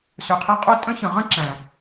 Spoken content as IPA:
s ø˨ qʰ æ˧ qʼ o˦ tʼ ə̃˦ ç ə̃˨ ʁ ə̃˦ ǁ æ̃˨

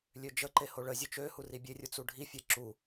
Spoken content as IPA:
lʲ ø d͡ʒ ə ǃ e h o ɭ ə zʲ ø t͡ʃ ø h u r i bʲ e rʲ u t͡s u ɖʱ i fʲ ɛ ǁ u

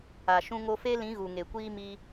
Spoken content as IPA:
a˨ ʃ ũ˧ ŋ o˧ f e˦ l ĩ˨˦ ɣ u˨ ŋ e˨ kʷ iː˦ m i˧

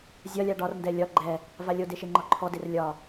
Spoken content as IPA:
zʲ ɒ lʲ a ɖ ɒ r n d ɛ lʲ ɒ ɡ͡ǃ ɛ | v a lʲ o d e ʃ e ŋ͡ǃ ɒ ǃʰ ɔ d e r lʲ ɒ

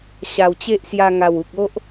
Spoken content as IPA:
ɕ a˨˩ w t͡ɕ e˦ ʔ s j a˧ ŋ a˨˩ w u˨ k̚ o˦ ʔ

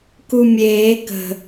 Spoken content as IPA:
k u mʲ eː k ə̤

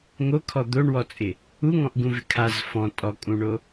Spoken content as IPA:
ŋ o kʰ ɔ d̪ o ɳ w ɔ t͡sʼ ɪ | u ŋ ɔ̃ ʔ ɡ ũ v ɪ kʰ a z f ɔ̃ tʼ ɔ kʼ ũ ɳ o

